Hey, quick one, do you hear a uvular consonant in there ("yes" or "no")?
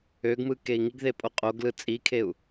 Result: yes